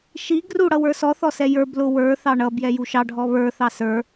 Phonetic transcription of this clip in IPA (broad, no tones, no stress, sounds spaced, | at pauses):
ʃ i ɡ r u ɽ ʌ w ə˞ s ɔ θ ɔ s ɛ j ə˞ b l ʊ w ə˞ θ ɑ ɳ ʌ b j ɛ j u ʃ ɑ ɖʱ ɔ β ə˞ θ ɑ s ə˞